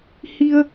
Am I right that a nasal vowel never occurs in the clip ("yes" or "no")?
yes